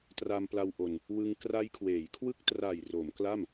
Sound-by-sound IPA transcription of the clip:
t r a˧ m p l a˧ w ʔ o˧ n | w ɯ˧ ŋ k r a˦˥ j kʰ w eː˩˦ j kʰ w ɯ˦˥ k̚ t r a˨˩ j r o˩˦ m k l a˥˩ m

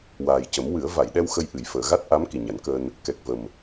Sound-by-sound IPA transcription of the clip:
w aː˨˩ j c ə˨˩˦ m w ɨ˨˩˦ ə̯ v a˨˩˨ j ɗ ɛ˧ w x ə˧ j ʔ ɨ˨˩˨ j f əː˨˩˨ ɣ a˦˥ t̚ ʔ a˧˥ m k i˨˩ ɲ a˨˩˦ n k əː˧ n | k ɛ˨˩ k̚ v ə˨˩ m

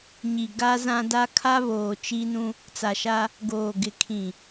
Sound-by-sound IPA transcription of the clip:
ɲ i˨ ɡ a˦ z ã˦ d a˦ kʰ a˦ β oː˨ t͡ʃ i˦ n ũ˦ | t͡s a˨ ʃ a˦ | ɡ oː˨ ɡ ɪ˨ kʰ ĩ˨

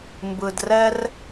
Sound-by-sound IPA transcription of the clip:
m b ɯ˧ d r ɛ˦ r

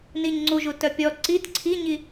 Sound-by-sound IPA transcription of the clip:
n i ɲ ŋ͡ǀ u ʒ u t œ pʲ ɔ ǀ i t ǀʰ i ɲ i

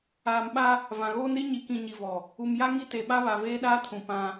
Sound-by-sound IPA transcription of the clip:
aː˨ m ɓ a˦ | v ã˨ ɣ oː˦ n ɾ i˦ ɲ i˨ k ĩ˨ ɲ i˨ v ɔ˨ | u˨ m j a˦ ŋ i˦ t e˨ ɓ a˦ β a˨ v eː˦ ɗ aː˦ tʰ ũ˨ p ã˦

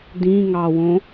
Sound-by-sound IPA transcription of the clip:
d ĩ ŋ ɑ w õ

